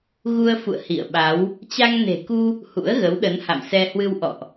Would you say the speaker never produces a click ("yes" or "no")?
yes